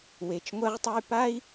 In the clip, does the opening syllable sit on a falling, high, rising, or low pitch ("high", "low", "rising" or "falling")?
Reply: low